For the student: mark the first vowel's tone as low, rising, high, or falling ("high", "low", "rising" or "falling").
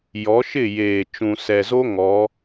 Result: rising